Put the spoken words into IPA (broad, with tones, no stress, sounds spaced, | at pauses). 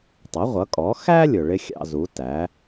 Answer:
tˤ ʌ˩˥ ʁʷ ʌ˩˥ kʼ ɔ˩˥ x æ˥ lʲ ʊ˩ ɭ ɪ˥ xʲ ɑ̰˧ z u˩˥ t æ˩˥